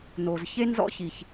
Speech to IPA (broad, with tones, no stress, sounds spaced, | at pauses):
n o˩ z ç e˥ n z ɔ̰˥ ç i˩ ç